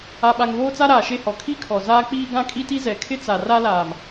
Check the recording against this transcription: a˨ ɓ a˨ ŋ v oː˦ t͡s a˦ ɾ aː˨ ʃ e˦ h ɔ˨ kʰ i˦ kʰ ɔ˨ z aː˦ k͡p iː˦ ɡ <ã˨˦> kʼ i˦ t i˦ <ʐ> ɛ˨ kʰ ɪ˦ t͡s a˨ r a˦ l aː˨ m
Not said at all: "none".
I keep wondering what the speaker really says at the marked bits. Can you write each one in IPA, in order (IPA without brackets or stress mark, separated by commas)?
ã˦, z